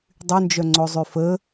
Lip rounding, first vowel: rounded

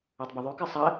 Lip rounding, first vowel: rounded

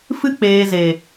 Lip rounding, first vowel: unrounded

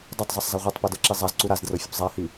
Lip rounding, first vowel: unrounded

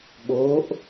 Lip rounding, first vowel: rounded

